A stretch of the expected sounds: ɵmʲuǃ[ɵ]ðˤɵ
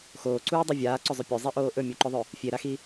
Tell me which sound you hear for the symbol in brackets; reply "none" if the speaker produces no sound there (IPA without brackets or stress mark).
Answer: ɵ